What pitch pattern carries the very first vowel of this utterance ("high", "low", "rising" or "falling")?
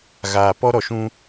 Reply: low